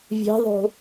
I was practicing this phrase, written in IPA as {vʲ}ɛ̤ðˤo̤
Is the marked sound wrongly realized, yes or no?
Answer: no